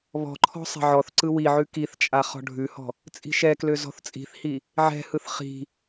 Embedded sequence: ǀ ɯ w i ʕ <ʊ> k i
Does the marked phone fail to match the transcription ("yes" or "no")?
yes